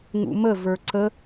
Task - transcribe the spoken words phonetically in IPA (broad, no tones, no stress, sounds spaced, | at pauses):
ŋ ṵ m ə v ə˞ ǀ ə